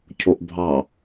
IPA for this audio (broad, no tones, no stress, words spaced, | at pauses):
cʰoʔbʱɑ